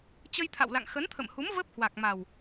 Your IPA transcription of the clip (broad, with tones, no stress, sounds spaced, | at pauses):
t͡ɕ ə˧ j t̪ʰ a̰˧˨ w l a̰˧˨ ŋ x ə˨˦ n t̪ʰ ə̰˧˨ m h u˨˦ m v əː˦˥ p̚ h w a˨˩ k̚ m a˨˩ w